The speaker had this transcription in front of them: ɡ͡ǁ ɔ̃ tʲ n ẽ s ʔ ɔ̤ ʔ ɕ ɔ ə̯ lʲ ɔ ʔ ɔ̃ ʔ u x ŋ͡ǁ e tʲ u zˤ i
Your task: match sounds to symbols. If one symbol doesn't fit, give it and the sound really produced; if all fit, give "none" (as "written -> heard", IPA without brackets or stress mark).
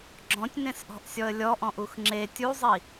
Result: ɕ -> sʲ